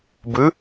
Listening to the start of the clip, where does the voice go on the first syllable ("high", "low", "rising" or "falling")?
rising